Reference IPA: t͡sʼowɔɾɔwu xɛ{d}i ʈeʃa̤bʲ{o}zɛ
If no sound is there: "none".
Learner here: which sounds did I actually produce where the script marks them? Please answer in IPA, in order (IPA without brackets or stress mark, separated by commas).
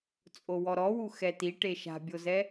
t, o